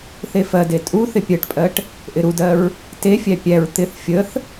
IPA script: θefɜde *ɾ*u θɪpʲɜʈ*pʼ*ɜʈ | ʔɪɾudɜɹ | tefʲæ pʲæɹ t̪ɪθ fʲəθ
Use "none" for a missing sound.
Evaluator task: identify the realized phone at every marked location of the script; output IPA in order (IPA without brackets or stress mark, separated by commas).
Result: tʼ, pʼ